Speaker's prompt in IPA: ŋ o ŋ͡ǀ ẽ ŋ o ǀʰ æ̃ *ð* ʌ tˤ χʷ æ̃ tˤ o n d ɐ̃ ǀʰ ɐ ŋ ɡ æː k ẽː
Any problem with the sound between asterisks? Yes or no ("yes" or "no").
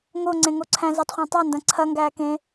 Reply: yes